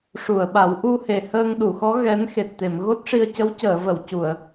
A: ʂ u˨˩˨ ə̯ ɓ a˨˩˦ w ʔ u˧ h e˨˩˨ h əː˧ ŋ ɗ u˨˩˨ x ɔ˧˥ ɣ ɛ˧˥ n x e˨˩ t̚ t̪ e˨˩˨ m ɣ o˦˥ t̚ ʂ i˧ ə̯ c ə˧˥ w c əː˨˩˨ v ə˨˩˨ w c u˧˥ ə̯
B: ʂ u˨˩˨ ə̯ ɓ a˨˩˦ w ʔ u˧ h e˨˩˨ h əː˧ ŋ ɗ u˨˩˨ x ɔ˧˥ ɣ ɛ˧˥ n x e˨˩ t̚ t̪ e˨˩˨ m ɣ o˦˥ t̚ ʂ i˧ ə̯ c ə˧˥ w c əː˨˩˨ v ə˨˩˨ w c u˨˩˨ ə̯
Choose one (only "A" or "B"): B